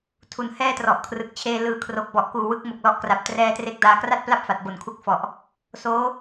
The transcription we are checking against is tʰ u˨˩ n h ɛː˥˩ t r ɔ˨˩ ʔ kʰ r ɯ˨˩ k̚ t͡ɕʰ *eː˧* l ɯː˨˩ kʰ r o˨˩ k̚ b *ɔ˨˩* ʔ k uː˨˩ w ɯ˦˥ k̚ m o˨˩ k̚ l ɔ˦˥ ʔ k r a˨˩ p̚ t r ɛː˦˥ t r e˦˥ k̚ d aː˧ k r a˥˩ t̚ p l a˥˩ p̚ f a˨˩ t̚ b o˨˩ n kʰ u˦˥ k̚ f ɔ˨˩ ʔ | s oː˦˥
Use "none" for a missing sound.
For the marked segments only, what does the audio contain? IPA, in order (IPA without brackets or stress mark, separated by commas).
eː˧, ɔ˨˩